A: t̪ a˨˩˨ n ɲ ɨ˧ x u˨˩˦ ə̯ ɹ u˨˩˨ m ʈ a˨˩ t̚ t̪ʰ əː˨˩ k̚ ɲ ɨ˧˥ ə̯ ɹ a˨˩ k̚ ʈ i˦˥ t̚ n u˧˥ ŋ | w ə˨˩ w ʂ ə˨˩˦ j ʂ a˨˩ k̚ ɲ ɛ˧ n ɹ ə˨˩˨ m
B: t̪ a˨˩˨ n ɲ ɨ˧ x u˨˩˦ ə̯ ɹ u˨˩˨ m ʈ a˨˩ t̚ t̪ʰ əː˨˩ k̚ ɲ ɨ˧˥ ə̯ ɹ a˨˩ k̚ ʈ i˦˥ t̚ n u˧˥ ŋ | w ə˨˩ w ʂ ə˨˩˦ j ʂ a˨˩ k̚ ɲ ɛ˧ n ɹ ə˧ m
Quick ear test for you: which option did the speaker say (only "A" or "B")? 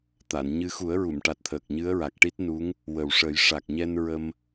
B